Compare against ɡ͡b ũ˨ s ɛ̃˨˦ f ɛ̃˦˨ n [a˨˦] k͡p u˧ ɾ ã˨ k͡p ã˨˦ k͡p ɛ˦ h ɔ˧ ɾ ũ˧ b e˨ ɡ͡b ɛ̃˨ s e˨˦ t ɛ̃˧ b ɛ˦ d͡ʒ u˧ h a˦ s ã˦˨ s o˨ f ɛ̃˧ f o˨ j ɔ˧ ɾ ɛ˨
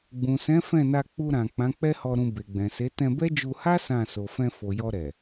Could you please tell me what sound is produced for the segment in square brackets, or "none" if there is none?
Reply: a˧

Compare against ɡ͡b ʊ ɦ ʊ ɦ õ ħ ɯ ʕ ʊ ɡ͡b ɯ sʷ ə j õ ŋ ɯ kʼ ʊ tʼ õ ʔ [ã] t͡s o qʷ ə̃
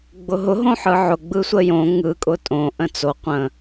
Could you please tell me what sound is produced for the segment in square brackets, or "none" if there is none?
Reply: ə̃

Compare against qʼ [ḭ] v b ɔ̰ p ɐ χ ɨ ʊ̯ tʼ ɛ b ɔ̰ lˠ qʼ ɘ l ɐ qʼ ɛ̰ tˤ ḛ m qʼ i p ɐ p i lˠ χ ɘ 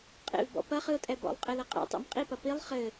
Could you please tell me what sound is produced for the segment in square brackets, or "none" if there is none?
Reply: ḛ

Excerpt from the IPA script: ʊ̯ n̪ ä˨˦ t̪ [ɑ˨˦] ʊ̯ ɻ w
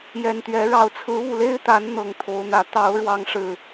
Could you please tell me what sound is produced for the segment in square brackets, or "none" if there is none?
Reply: ɑ˨˦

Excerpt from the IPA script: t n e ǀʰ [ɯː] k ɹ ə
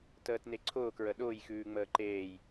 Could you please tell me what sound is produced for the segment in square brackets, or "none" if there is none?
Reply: ʊː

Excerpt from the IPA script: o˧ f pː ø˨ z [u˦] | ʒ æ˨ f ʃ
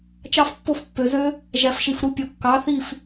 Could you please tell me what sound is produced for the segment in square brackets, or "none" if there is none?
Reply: ø˦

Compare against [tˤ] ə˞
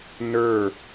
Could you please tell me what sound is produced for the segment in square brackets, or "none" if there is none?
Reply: n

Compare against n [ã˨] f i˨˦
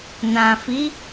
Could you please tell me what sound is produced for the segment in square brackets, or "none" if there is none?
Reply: ã˨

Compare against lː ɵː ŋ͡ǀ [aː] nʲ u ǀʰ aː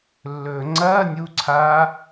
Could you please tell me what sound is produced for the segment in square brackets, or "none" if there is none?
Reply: ɐː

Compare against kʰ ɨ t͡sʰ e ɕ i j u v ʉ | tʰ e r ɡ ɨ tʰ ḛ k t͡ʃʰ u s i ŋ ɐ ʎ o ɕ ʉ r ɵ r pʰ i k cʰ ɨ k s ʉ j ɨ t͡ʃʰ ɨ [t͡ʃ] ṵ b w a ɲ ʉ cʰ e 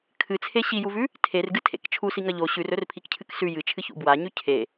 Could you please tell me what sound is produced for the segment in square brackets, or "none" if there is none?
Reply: ç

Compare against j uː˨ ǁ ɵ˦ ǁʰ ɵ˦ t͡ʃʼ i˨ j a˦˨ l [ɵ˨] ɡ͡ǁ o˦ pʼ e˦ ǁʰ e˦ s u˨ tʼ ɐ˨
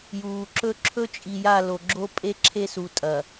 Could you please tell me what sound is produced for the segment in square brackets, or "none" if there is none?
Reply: o˨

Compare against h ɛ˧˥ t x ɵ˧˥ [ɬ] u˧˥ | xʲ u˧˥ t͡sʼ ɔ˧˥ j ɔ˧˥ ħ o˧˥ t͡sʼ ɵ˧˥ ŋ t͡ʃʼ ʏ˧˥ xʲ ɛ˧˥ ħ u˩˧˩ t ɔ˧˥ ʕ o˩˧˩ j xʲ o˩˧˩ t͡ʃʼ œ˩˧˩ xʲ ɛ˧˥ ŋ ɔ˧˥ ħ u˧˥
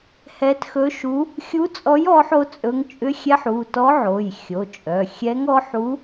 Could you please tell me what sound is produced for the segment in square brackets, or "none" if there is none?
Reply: ʃ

